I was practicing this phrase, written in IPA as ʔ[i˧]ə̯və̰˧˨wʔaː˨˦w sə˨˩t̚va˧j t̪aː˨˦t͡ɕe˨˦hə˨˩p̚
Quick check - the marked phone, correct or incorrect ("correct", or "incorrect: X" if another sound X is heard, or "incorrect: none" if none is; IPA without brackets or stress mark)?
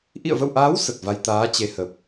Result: incorrect: ḭ˧˨